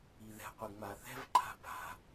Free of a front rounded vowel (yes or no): yes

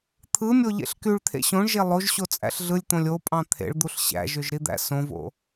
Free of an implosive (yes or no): yes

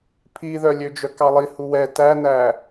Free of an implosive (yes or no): yes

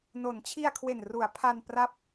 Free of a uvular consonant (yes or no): yes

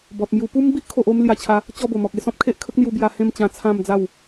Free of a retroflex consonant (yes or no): yes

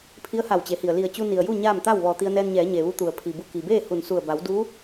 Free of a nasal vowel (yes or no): yes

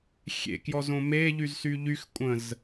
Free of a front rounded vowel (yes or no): no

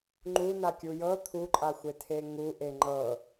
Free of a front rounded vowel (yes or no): yes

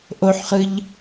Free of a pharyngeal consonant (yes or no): no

